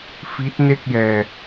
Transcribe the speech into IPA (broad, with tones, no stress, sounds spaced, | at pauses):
f i˦˥ t̚ n e˥˩ k̚ j ɛː˧